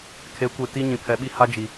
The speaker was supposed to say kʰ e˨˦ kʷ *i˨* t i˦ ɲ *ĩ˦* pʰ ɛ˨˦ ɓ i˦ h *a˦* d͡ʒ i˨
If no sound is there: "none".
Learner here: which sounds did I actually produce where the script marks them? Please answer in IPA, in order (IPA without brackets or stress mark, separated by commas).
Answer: e˨, ĩ˨, a˦